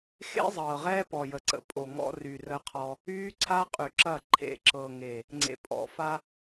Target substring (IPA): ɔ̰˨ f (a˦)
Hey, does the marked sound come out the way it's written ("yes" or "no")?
yes